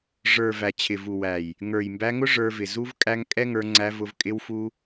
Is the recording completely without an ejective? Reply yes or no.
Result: no